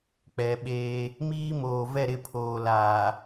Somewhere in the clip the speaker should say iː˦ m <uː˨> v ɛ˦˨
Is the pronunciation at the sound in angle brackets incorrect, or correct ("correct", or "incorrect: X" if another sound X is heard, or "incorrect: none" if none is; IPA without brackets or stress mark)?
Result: incorrect: oː˨